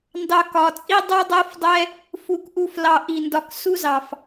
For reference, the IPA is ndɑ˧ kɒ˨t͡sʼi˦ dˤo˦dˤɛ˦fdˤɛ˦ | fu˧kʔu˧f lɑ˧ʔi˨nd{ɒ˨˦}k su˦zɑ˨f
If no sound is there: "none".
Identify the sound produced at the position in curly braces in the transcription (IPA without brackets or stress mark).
ɒ˧